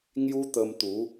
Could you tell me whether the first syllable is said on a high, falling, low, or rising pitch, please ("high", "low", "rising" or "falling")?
high